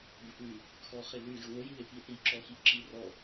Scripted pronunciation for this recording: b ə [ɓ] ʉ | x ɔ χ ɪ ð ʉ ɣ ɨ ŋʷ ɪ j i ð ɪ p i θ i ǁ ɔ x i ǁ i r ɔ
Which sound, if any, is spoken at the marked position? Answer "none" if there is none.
p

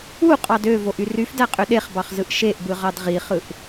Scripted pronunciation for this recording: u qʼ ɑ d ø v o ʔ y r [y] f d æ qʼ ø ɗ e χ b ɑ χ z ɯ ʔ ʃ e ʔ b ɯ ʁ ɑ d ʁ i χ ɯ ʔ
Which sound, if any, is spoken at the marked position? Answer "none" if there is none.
y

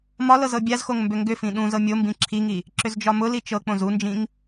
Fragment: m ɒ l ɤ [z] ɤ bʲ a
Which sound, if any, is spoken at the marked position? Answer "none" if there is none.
z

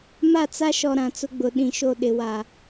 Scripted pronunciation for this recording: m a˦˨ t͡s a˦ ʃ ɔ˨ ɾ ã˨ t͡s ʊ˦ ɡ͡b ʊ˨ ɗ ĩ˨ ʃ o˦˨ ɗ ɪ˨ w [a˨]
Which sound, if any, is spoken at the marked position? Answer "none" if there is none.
a˨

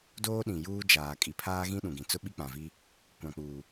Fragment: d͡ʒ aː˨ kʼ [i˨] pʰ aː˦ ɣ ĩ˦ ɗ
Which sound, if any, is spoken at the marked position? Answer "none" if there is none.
i˨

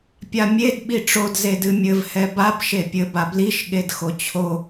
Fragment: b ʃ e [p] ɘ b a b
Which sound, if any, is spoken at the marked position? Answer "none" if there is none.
pʲ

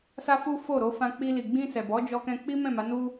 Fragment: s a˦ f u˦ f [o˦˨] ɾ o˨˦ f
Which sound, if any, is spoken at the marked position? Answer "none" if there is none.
o˦˨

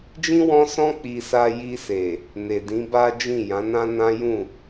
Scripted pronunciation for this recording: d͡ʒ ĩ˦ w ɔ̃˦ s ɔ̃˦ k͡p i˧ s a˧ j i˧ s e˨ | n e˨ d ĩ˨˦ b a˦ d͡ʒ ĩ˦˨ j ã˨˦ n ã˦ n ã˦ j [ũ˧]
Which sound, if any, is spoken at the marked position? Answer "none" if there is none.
ũ˦˨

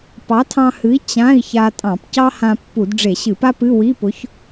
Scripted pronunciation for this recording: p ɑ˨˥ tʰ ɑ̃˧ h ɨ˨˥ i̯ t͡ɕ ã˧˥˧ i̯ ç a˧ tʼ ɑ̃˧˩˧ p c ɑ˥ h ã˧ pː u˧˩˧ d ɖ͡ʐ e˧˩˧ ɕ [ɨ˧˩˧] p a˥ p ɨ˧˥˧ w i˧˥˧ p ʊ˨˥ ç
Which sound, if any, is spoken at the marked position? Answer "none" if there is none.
ɨ˧˩˧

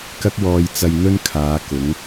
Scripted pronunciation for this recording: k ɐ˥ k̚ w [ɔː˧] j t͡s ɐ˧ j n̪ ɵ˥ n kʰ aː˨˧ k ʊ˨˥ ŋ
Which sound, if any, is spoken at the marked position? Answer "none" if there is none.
ɔː˧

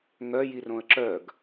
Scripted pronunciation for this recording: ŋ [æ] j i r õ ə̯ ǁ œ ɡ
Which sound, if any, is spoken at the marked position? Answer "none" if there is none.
œ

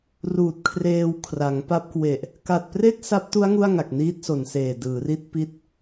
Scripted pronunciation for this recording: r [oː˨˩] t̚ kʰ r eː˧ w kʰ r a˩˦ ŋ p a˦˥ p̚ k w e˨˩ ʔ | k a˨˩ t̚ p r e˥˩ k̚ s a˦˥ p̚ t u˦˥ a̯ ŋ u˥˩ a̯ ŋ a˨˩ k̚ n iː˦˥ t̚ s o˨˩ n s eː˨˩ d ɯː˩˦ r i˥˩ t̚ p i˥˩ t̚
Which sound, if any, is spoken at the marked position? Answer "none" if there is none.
uː˨˩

